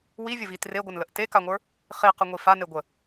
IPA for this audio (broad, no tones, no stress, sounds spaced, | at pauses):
w i vʲ ə v i t r e ɡʷ ə n l ə ʔ t e k a ŋʷ ə˞ | χ i q ə ŋʷ i f a n e ɡʷ ə